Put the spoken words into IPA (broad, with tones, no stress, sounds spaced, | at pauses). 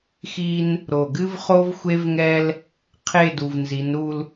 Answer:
x i˦ n | ɾ o˨ ɡ ɨ˦ v χ o˦ v xʷ e˦ v ŋ ɛ˦ l | qʰ e˦˨ d u˨ v n z i˨˦ n ɾ u˦ l